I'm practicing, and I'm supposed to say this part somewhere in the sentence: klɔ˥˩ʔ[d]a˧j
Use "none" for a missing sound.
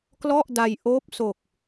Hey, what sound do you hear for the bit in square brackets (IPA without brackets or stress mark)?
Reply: d